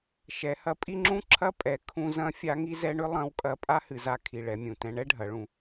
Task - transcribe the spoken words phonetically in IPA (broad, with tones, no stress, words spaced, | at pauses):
ʃɛ˩˧hɐ˧pʼi˥ŋ͡ǁũ˥ ǁʰɐ˥pʼɛ˩˧ kʰũ˧zɐ̃˧˥ fʲa˧˥ŋi˥zɛ˧˥ɳʏ˥ lˠɐ̃˧˥wkʼɐ˧ pʼa˥hɨ˩˧za˧˥ kʰi˩ ɭɛ˩˧mʲũ˩tɛ̃˧ ɳɛ˥ɖʱɐ˩˧ɭũ˩˧